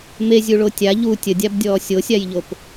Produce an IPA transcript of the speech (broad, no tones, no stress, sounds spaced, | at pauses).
m e zʲ u ɭ o tʲ a ʎ u tʲ ə dʲ a b dʲ ɔː sʲ o sʲ a j ʎ o p